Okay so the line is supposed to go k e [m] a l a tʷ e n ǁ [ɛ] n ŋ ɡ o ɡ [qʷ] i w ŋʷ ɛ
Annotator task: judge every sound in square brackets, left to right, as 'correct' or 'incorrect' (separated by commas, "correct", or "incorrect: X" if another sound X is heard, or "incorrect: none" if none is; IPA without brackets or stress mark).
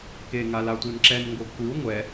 incorrect: ŋ, correct, incorrect: kʷ